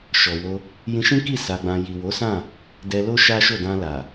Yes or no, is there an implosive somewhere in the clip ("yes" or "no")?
no